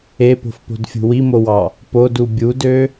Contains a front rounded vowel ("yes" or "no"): yes